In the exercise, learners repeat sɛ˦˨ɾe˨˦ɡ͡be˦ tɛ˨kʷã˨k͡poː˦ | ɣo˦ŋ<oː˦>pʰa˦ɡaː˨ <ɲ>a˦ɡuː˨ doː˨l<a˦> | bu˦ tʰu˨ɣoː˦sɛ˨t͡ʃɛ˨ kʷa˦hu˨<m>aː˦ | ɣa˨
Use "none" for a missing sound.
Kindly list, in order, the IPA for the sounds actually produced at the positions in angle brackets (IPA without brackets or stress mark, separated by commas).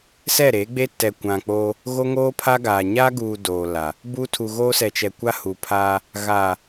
oː˦, ɲ, a˨, pʰ